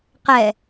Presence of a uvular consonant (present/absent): present